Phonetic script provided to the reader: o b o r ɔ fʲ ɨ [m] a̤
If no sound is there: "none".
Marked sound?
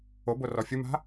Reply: m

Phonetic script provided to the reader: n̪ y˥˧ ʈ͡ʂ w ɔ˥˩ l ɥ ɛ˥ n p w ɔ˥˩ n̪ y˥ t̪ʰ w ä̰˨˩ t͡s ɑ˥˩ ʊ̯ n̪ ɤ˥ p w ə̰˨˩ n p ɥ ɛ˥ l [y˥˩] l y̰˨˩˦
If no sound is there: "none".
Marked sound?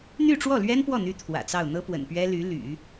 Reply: y˧˥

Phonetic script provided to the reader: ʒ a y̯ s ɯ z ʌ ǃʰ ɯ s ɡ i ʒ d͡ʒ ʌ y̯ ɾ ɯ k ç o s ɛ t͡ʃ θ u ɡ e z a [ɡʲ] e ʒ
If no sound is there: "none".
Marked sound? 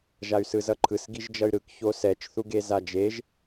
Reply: d͡ʒ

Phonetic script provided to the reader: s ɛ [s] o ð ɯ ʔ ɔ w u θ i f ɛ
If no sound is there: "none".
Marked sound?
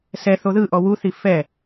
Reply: θ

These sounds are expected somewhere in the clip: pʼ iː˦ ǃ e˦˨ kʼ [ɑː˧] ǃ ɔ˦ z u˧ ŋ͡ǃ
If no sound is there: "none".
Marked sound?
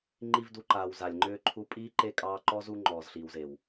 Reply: ɑː˧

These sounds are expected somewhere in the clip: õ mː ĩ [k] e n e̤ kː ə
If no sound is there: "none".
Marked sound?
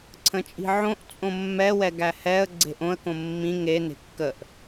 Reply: ŋ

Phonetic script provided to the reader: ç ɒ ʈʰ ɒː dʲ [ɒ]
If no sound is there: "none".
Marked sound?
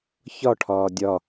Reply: ɒ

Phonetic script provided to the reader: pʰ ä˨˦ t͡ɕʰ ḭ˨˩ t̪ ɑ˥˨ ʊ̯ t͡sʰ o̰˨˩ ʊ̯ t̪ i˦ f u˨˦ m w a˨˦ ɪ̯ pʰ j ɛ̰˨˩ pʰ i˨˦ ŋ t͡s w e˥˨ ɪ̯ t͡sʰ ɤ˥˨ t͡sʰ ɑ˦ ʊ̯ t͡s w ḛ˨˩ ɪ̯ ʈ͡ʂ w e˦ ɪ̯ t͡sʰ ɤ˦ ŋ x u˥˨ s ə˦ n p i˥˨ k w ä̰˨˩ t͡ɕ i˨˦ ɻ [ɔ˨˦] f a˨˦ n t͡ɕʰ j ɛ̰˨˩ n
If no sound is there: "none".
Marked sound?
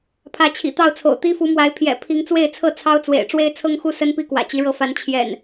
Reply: ɤ˨˦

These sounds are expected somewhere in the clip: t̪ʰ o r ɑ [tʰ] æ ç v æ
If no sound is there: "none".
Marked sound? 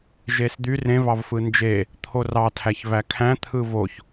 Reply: tʰ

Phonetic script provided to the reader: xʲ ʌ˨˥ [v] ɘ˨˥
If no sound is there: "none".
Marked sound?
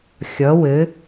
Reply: w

